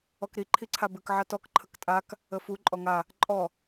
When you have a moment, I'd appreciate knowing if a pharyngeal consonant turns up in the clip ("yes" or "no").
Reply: yes